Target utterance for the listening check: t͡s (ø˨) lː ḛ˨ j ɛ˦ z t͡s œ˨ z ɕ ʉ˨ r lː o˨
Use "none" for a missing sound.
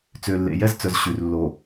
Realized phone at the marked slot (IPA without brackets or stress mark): ø˨